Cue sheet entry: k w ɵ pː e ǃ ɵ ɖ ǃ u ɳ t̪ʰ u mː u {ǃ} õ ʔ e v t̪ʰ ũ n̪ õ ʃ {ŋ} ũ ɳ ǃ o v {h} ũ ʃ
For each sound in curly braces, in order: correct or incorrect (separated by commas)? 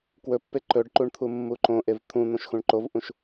correct, incorrect, incorrect